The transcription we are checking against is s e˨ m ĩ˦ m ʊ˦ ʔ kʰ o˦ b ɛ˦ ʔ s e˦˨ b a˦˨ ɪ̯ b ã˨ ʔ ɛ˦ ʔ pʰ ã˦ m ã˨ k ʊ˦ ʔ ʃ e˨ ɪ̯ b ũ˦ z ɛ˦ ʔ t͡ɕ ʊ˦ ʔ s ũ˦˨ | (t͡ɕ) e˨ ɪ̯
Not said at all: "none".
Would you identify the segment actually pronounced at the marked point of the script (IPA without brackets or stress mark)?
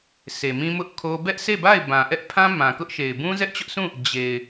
d͡ʑ